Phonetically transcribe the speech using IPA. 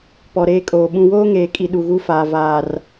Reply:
p ɔ˨ ɾ eː˦ kʼ oː˨ ɓ ũ˨ w oː˦ ŋ eː˨ kʼ i˨ ɗ u˨ ɣ u˦ f aː˨ v aː˨ r

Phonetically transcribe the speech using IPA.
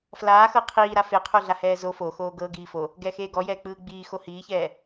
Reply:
f l aː x ɤ qʰ iː ɾ a f e qʰ o ɮ a h ɛː z o f o x oː ɡ ɤ ɡ iː f o | ɡ ɛː x eː ɡ ɔ j ɛː k͡p ɯː ɡ͡b iː x o h iː ç ɛː

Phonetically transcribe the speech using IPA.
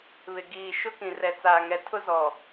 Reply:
β ɪ˨ ɡ iː˨ ʃ ʊ˦ k ĩ˨ r ɛ˨ t͡s aː˨ ŋ ɛ˨ tʰ ʊ˦ z ɔ˨

